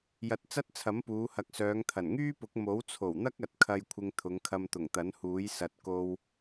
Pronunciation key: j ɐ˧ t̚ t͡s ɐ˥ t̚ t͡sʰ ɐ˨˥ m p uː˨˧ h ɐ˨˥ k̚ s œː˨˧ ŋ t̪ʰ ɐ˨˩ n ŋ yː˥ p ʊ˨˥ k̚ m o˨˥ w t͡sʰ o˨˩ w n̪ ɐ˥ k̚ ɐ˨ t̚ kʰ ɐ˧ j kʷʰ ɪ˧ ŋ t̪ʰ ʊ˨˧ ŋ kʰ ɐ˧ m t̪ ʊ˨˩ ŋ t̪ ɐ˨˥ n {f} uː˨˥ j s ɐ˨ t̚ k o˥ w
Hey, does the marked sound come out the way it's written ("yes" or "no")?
no